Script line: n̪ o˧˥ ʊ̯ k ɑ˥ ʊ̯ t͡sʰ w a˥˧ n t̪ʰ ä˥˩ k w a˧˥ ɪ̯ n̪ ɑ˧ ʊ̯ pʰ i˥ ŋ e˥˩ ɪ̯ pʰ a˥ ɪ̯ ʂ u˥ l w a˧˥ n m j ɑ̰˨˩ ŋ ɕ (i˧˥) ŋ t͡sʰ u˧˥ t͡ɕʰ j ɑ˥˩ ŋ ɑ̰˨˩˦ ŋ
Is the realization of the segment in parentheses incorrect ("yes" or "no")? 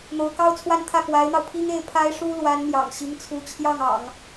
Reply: no